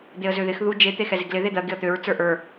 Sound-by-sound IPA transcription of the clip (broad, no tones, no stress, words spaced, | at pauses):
d̪eə̯zøðɪx ðu d͡ʒe t̪exɛzeɡlɪ ðed̪ɜ ɡɪə̯t̪øɹ t͡sə˞ʔə˞